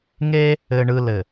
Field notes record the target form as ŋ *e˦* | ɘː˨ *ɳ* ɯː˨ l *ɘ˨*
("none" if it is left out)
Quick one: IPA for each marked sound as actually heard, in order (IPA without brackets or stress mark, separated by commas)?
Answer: e˦, ɳ, ɘ˨